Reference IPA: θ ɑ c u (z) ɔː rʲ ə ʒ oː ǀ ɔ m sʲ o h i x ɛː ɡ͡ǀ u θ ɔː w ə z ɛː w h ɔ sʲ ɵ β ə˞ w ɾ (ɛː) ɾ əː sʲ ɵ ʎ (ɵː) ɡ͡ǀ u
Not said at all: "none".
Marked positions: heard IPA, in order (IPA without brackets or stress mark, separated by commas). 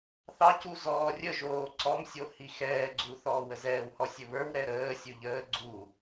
z, ɛ, əː